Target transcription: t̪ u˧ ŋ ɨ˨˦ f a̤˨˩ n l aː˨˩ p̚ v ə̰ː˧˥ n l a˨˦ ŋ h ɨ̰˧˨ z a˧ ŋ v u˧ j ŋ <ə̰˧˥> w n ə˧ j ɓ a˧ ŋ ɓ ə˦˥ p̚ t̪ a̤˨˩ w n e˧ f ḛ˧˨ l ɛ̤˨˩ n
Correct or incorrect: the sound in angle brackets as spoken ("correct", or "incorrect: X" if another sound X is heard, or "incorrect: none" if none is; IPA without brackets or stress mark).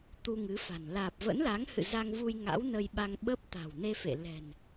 incorrect: a̰˧˥